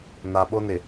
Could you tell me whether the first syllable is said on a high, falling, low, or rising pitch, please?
low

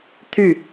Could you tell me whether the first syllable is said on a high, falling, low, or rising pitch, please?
falling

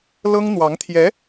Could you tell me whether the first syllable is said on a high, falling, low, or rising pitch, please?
high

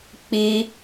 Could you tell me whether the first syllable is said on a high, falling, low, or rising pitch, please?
high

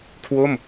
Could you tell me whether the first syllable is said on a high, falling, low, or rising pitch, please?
falling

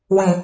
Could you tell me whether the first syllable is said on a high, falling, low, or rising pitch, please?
low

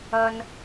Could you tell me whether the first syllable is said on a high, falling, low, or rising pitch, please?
high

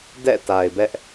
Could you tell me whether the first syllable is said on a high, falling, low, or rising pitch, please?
falling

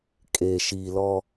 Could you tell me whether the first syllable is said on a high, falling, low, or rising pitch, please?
low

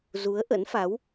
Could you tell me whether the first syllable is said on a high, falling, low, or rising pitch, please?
rising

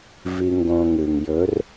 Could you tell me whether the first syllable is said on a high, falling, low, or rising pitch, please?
low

